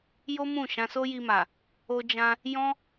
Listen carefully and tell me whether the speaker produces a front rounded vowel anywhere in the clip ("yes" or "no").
no